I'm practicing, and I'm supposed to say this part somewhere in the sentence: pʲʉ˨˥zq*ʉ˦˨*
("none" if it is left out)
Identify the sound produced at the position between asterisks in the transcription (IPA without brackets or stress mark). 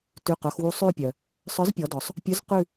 ʉ˦˨